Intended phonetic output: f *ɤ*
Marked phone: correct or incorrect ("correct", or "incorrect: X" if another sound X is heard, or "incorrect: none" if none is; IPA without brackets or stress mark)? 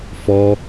incorrect: ɔ